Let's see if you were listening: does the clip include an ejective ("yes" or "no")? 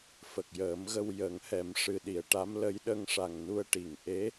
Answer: no